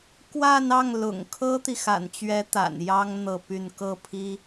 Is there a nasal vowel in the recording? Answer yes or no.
no